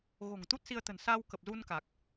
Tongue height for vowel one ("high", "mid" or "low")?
mid